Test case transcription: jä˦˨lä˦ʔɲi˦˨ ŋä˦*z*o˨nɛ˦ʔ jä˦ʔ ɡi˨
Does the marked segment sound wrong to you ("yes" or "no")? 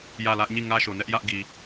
yes